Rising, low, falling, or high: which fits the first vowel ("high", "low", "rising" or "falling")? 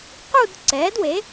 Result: falling